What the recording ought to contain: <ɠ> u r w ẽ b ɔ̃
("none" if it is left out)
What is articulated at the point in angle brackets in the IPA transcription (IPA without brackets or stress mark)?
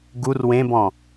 ɡ